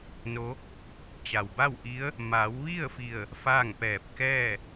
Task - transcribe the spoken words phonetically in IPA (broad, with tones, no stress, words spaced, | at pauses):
no˧˥ | t͡ɕa˩wba˥˨wʔi˧˥ə̯ | ma˩˧wʋi˥˨ə̯ fi˧˩ə̯ | faː˥˨ŋpɛː˧˩p̚ kɛː˥˨